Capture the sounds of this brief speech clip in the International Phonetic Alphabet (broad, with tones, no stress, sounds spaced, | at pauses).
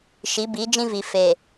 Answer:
ʃ i˨˦ b i˨˦ d͡ʒ ĩ˦ v i˨ f e˨